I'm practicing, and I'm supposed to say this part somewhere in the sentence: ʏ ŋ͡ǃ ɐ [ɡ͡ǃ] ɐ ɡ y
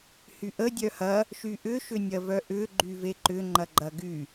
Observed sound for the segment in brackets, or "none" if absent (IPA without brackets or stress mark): ɡ͡ǃ